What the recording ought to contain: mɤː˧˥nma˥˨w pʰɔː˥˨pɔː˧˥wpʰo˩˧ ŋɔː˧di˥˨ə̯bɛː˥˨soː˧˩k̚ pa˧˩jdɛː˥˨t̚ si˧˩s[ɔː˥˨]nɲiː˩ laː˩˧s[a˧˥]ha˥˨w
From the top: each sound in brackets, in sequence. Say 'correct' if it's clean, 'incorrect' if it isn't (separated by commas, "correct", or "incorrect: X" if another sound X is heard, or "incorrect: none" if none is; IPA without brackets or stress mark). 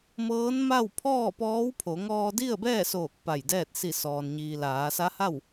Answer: incorrect: ɔː˩, correct